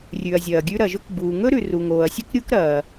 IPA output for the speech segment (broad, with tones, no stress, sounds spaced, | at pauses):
rʲ ʉ˩ ɐ̯ zʲ ɐː˩ ɡʲ ʉ˥ ɾ ɐ˩ ʒ ɵ˥ k b uː˩ ŋ ɵ˥ ɾ ʉ˩ r u˩ ŋ oː˩ ɐ̯ sʲ ɵ˥ k ɾʲ u˥ k ɾ ɐː˩